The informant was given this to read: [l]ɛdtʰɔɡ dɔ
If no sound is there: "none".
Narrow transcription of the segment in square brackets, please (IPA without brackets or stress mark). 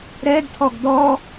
ɾ